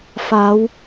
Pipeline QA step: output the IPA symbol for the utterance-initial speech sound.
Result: f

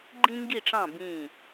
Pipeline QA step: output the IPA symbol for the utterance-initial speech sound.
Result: ɡ͡ǃ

